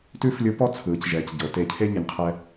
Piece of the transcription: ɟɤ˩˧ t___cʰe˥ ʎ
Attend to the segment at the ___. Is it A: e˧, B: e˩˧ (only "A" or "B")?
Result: A